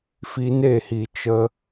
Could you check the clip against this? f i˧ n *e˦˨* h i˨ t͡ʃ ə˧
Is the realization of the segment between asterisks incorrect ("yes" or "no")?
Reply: no